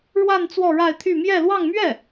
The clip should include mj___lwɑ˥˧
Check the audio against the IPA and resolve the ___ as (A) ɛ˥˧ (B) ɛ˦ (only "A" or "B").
A